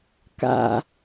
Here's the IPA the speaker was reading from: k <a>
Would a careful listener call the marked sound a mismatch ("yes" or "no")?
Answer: yes